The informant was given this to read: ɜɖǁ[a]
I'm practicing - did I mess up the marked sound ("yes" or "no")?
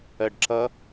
yes